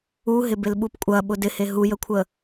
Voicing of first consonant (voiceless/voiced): voiced